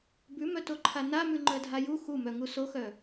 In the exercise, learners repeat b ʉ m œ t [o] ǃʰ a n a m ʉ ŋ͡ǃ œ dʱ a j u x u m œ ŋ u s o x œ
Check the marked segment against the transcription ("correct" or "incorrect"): correct